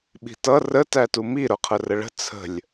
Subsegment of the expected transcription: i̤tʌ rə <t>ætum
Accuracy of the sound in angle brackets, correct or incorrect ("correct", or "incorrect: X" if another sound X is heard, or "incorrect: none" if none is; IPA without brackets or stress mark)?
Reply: correct